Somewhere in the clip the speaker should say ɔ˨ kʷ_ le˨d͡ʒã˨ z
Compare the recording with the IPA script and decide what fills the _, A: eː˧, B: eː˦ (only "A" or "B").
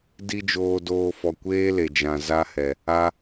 B